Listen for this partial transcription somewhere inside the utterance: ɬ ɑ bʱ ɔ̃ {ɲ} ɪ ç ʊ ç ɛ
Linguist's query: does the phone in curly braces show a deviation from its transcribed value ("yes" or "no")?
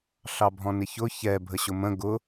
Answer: yes